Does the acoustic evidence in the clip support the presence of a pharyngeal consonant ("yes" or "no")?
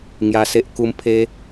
no